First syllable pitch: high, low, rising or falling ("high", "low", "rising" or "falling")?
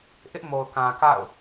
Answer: high